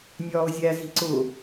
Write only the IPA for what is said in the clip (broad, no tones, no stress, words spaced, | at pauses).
nʲɒːʊ̯zʲæzi̤ ǀʊ